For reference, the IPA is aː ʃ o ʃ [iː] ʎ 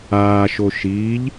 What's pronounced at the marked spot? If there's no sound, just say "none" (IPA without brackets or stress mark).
iː